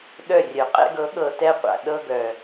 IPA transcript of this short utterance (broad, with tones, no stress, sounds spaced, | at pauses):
ɗ œ˦˨ rʲ œ˨ qʼ ɛ̰˧ ɡ ɤ˨˦ ɠ ɤ˧ t ɛ˦ qʷ a̰˨ ɗ ɤ˧ ɡ œ˨